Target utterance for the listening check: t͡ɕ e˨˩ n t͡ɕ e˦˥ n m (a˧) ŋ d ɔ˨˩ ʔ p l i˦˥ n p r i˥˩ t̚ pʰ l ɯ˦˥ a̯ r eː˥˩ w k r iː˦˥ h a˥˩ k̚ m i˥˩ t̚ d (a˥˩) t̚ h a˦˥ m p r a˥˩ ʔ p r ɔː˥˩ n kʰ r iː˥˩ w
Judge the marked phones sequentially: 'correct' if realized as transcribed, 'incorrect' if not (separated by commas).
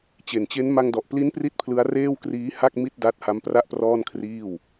correct, incorrect